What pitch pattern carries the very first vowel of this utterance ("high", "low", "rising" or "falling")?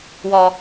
low